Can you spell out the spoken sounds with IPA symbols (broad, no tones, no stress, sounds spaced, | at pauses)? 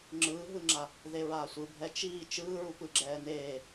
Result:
ŋ͡ǁ ɯː ɦ ɯ ŋ͡ǁ a | ð e ɹ aː sʷ ɯ bʱ ɛ t͡ʃ iː t͡ʃ ɯː ɹ u p ɯ ɡ͡ǁ ɛː n eː